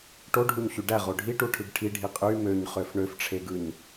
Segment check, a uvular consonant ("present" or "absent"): present